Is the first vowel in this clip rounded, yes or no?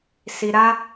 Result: no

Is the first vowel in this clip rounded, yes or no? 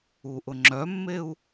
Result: yes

